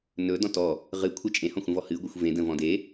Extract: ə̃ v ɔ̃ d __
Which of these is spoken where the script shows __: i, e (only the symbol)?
e